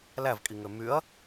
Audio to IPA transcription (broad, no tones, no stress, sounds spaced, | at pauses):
l æ v kʼ i ŋ ø m y ɐ̯